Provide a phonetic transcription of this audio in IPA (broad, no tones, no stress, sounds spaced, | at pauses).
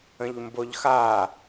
ə̃ ʎ m b o ʎ x a